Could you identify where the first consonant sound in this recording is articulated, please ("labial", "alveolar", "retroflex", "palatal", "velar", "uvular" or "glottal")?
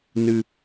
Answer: alveolar